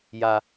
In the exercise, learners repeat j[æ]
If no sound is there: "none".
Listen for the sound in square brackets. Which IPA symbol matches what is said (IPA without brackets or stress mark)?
a